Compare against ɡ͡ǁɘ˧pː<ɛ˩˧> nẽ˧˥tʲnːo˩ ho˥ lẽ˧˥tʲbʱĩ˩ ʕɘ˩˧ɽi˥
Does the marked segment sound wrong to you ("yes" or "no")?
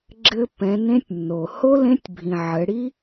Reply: yes